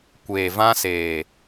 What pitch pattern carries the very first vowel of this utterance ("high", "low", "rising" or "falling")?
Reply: low